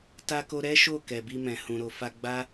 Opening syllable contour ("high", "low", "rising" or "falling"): high